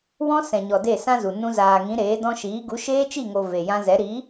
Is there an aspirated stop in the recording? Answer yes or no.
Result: no